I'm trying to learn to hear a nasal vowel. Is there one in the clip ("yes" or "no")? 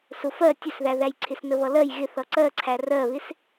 no